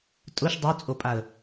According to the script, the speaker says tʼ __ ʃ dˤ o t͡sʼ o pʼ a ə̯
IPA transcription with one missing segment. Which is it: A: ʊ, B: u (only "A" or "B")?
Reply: A